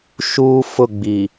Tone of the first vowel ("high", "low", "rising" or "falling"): high